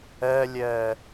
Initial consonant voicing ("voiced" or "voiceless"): voiced